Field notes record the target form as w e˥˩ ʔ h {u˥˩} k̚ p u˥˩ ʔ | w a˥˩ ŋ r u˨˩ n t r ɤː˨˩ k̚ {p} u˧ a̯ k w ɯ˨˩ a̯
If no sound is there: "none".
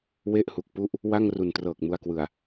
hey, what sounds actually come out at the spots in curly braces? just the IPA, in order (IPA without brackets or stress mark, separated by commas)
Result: u˨˩, m